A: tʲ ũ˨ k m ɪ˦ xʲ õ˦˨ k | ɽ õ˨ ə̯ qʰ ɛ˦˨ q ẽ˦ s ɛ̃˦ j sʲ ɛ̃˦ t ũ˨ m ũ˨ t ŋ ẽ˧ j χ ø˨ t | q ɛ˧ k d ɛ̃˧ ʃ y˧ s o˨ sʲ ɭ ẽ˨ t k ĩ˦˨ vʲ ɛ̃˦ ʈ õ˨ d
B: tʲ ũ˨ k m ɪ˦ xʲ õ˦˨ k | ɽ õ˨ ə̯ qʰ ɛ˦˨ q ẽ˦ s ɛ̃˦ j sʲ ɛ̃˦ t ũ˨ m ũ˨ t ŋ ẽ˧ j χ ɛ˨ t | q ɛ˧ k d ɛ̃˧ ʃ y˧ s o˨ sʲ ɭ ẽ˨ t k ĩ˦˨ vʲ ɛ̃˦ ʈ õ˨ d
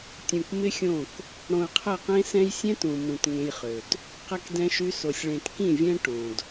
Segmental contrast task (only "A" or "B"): A